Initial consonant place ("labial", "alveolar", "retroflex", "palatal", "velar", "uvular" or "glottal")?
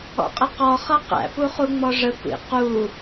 uvular